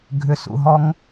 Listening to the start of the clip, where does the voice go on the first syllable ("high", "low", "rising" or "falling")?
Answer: low